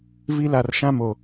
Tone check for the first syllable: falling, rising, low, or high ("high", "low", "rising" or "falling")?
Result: high